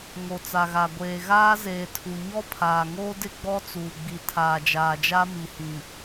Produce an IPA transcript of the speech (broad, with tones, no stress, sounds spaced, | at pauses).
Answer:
ŋ o˨ t͡s a˨ ɣ a˨ ɡʷ eː˨ ɣ aː˦ z eː˨ tʰ u˨ ɲ ɔ˦ pʰ aː˨ ŋ oː˦ d ɪ˦ ɡ͡b ɔ˦ t͡s uː˨ ɡ͡b i˨ tʰ aː˨ d͡ʒ aː˨ d͡ʒ a˦ m i˨ h ĩ˨